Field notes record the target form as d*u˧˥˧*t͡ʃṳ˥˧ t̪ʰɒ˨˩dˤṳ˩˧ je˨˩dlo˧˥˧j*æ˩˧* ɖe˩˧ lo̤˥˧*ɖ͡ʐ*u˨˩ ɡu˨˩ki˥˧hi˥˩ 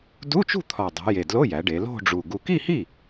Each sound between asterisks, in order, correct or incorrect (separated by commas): correct, correct, correct